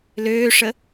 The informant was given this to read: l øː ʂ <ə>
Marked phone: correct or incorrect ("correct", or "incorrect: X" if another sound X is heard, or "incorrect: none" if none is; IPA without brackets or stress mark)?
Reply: correct